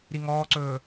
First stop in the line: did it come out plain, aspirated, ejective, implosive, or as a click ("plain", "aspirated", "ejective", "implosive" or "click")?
click